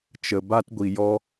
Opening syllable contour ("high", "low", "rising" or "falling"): low